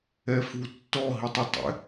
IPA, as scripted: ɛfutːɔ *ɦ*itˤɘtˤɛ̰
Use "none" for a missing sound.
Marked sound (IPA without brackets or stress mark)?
ɦ